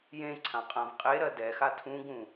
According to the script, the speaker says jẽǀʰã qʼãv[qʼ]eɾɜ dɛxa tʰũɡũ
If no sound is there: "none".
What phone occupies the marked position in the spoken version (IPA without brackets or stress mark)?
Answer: qʼ